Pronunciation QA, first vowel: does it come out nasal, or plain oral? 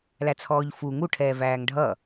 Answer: oral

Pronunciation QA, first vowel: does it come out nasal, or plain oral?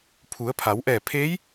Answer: oral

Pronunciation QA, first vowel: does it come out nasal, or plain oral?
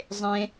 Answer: nasal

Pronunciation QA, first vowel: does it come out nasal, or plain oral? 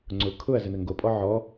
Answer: oral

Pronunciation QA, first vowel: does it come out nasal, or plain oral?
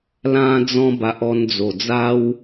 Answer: nasal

